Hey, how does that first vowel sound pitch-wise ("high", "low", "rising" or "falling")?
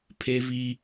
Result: high